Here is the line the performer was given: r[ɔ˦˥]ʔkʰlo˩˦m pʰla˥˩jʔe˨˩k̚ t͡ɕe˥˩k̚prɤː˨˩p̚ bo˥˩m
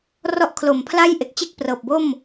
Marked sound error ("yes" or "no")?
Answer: no